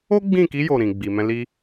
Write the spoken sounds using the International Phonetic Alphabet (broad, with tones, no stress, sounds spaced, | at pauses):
o˦ ɡ͡b ĩ˦˨ k i˨˦ j o˦˨ ɾ ĩ˨ ɡ͡b i˨ m ɛ̃˧ l i˦